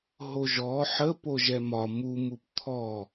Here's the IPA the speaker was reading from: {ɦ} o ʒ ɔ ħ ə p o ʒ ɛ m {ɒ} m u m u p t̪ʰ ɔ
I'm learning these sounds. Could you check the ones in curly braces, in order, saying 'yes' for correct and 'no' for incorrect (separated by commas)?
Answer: yes, yes